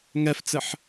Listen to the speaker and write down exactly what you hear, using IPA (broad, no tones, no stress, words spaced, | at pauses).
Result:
ŋɛft͡sɘħ